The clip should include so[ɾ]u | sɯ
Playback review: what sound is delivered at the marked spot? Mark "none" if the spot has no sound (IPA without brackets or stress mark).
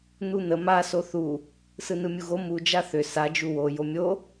θ